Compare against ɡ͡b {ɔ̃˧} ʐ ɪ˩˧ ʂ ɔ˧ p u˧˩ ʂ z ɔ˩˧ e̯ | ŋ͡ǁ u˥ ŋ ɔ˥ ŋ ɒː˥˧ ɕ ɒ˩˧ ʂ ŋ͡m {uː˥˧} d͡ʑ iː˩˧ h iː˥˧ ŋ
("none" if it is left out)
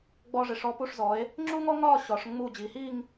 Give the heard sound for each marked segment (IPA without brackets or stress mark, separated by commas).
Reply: ɔ˧, uː˧˩